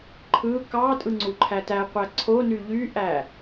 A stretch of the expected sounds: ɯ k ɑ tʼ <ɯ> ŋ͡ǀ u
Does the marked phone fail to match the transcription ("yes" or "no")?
no